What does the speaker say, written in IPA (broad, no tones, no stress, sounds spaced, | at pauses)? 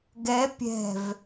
ɡ ɛ pʲ ɛ̤ v